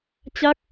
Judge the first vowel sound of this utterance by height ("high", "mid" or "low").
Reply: low